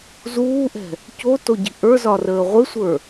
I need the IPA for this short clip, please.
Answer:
zuːʔɛ̤ | cotoɟi̤ ʔə˞zɒrəː ʁʷɪsʷə˞

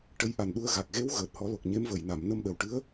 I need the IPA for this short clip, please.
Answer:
ʈə˧˥jʔa˨˩nɗu˧ə̯ ɣa˨˩k̚ɣe˧˥w ɣəː˨˩t̚hɔ˨˩˦lo˨˩k̚ ɲe˧˥mvə˨˩˨jna˨˩˨m nə˧mɗə˨˩wʈɨ˧˥ə̯

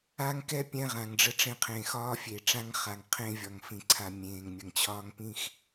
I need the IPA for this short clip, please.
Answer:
a˦ŋkɛ˦ pʲɛ̃˦ʁã˨ŋɖ͡ʐə˦ʈ͡ʂẽ˦ qʰẽː˨xɒː˦fʲe˨ʈ͡ʂã˦ŋ χa˨ŋqʰẽ˦vʲɒ˨ŋ fĩ˦ǀʰa˦ mʲẽː˨ŋ mʲə˨ŋt͡ɕʰɒː˦ŋpĩ˦x

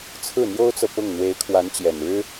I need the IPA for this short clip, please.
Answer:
t͡sʰɹ̩˥˩n̪jo˥ʊ̯t͡sɤ˨ pʊ˥˩ŋ n̪we˧˥ɪ̯kʰwa˧˥nt͡ɕjɛ˨˩nɻɻ̩˥

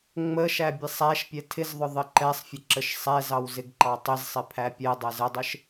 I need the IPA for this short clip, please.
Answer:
ŋ͡məʃæ bʲɛsˤæʃpʲɛ tʰɪzðˤʊ ðˤəǃɛsˤfʲə ǁəʃsˤɛzɑw zɪɡǃɑtˤɪzsˤɪ pʰæpʲɛdˤɛz ədˤɪʃ

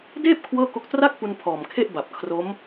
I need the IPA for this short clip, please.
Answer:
deː˥˩p̚ kʰwɤː˥˩ko˦˥k̚ tra˥˩k̚pu˧n pʰɔː˨˩mkʰe˥˩ʔba˨˩p̚ kʰro˦˥m

